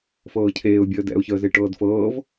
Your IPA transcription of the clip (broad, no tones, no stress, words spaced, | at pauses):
fɤːcʰeːʊ̯ bʲəːdɛ̰ʊ̯ çəːzeʈɤːdfɤːv